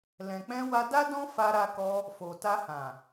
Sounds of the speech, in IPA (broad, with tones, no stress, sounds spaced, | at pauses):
l ɛ̃˨ k͡p ɛ̃˧ w a˧ d a˦ d ɔ̃˦ f a˧ ɾ a˧ k ɔ˧ | f o˨ t a˧ h ã˨